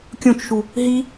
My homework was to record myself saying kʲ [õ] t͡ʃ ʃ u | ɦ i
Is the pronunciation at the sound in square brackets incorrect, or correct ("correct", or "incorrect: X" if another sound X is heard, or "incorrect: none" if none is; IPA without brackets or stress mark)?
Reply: correct